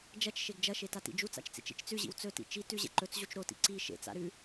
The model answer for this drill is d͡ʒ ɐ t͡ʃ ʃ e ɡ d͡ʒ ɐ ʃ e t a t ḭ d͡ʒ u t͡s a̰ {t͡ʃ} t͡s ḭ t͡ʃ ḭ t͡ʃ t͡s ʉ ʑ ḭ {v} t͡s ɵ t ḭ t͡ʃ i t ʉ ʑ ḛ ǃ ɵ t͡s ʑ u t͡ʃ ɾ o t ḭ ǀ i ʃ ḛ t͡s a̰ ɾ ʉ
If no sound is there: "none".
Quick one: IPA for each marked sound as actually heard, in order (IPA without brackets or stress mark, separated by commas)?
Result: t͡ʃ, w